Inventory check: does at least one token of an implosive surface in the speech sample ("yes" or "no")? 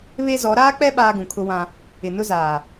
yes